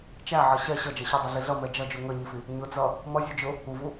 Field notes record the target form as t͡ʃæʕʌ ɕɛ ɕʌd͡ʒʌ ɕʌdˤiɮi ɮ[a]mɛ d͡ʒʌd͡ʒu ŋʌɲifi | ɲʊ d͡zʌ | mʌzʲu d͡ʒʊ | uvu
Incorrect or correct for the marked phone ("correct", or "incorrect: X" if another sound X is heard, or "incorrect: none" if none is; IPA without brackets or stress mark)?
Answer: incorrect: ʌ